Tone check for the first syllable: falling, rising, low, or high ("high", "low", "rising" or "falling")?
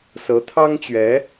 rising